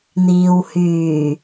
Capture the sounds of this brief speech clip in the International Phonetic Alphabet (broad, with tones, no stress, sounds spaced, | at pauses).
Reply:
n̪ iː˨ w h yː˨˩